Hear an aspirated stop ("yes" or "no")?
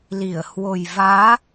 no